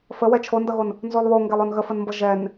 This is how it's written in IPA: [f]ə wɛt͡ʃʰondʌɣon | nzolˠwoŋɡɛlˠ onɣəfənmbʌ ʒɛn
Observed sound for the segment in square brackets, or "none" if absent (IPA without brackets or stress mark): f